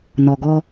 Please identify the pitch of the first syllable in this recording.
low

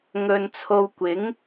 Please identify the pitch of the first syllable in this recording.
low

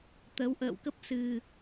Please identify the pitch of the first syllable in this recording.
rising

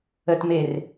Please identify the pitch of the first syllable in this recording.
low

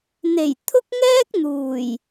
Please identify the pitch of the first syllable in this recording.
low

